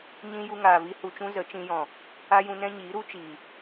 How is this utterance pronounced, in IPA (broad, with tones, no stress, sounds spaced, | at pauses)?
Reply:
ɲ ĩ˦ j u˧ ŋ aː˨ v i˧ h u˨ t͡ʃ ũ˧ z ə˨˦ t͡ʃ ĩ˧ j ɔ̃˨ | a˦ j ũ˧ n ɛ̃˦ ɲ iː˨˦ ɾ u˦ t͡ʃ iː˨